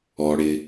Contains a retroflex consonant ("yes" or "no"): yes